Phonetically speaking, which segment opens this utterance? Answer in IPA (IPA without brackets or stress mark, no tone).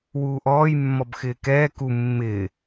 w